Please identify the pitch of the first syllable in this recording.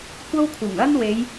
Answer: high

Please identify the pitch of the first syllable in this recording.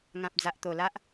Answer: low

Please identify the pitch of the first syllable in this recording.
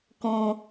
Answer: low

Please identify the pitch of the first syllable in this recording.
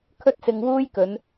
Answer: high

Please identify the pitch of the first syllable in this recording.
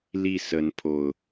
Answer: falling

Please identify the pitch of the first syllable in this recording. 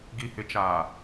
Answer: low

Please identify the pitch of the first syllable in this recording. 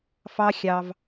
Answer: high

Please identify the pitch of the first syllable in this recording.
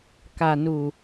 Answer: low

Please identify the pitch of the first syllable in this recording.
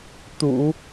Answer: low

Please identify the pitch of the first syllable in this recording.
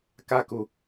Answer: high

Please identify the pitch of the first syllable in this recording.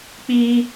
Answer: high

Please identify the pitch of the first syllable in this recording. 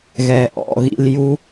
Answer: low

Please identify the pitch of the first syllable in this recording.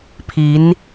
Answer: rising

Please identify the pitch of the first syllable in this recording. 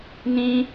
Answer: high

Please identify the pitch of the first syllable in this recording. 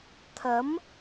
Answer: rising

